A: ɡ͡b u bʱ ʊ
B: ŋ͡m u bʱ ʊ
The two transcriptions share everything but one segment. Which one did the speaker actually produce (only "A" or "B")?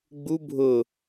A